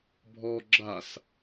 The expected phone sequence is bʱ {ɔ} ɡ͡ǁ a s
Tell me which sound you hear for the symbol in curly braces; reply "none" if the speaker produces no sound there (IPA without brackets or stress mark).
ɔ